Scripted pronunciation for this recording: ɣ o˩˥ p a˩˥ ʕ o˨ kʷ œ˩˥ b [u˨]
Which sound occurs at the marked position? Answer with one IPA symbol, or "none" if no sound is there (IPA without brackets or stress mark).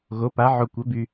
y˨